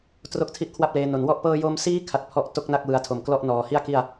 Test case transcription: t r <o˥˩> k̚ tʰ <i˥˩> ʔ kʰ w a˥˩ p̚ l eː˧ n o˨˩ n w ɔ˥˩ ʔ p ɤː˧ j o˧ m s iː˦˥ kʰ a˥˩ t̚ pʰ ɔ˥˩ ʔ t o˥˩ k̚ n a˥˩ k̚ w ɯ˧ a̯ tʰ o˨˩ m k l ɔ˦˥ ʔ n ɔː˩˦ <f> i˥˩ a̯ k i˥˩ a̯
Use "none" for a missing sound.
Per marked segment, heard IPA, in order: o˥˩, i˥˩, h

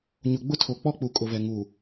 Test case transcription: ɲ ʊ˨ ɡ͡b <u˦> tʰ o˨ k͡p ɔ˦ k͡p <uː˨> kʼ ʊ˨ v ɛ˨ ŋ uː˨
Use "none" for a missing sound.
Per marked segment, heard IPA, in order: ʊ˦, u˨

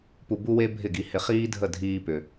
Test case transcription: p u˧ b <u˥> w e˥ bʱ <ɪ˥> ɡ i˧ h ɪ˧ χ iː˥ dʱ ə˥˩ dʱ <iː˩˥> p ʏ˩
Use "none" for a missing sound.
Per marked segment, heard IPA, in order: u˥, ɪ˥˩, iː˧

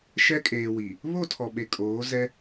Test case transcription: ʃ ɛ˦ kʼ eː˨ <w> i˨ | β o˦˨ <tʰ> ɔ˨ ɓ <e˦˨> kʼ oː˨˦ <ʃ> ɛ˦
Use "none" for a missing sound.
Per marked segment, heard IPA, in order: w, tʰ, e˨, z

